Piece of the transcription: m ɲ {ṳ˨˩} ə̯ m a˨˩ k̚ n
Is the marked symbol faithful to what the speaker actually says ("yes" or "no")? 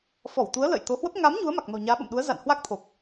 no